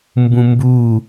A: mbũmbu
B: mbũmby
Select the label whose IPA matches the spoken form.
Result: A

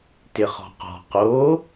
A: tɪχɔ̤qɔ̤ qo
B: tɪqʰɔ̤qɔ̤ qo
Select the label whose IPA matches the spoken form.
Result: A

